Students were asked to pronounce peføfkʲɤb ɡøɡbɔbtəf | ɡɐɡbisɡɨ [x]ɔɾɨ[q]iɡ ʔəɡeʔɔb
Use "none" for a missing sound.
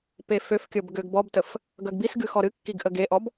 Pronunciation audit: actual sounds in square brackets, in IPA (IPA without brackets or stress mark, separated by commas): x, kː